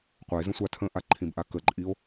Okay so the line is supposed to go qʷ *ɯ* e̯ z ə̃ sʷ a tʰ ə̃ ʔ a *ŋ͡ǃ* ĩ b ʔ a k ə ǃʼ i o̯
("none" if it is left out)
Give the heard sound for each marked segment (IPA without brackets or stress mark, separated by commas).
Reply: ə, ǃʰ